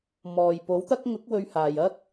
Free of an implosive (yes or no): yes